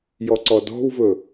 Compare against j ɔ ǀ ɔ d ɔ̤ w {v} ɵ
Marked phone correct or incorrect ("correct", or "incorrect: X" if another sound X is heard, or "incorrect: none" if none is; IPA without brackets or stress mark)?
correct